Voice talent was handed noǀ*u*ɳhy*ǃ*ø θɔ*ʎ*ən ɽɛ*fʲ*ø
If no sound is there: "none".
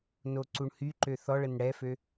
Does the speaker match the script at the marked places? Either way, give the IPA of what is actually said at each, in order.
u, ǃ, ɭ, f

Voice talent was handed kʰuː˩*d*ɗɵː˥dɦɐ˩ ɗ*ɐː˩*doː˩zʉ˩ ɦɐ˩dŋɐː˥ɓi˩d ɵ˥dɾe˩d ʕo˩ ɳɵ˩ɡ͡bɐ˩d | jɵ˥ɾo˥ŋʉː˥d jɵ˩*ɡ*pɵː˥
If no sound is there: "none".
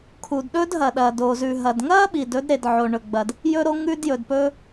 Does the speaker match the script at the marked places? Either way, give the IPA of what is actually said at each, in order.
d, ɐː˩, d

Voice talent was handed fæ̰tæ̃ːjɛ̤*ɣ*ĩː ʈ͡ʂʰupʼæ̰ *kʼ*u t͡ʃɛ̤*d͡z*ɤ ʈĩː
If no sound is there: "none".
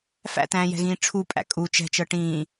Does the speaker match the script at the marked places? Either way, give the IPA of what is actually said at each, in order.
ɣ, kʼ, t͡ʃ

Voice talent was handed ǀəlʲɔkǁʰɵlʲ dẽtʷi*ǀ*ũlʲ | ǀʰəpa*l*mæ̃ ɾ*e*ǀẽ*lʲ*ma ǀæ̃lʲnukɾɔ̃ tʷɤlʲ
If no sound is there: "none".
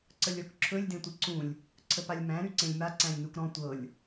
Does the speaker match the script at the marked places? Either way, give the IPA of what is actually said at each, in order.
ǀ, lʲ, y, lʲ

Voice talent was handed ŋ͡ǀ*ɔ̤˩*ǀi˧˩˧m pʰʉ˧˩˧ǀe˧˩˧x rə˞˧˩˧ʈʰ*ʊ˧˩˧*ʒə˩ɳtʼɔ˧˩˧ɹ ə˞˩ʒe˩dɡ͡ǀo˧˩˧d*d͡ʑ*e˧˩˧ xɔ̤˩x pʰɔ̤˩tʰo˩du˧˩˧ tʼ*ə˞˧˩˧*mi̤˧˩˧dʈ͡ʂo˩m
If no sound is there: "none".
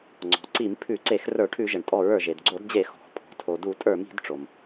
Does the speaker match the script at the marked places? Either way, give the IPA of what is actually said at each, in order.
ɔ̤˩, ʉ˧˩˧, d͡ʑ, ə˞˧˩˧

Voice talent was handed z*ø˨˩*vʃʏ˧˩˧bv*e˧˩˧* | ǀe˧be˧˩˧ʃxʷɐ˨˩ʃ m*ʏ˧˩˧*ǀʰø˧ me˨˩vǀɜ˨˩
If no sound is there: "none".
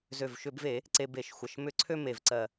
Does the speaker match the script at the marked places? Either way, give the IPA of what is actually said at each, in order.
ø˨˩, e˧˩˧, ʏ˧˩˧

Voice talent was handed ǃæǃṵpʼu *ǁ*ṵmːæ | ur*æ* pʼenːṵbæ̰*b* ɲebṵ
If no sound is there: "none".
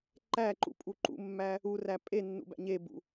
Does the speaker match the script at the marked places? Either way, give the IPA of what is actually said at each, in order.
ǃ, æ, none

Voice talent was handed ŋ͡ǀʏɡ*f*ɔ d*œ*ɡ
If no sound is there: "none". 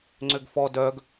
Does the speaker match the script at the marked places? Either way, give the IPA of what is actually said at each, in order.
f, œ

